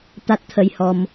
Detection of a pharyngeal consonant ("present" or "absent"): absent